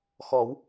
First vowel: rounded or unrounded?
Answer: rounded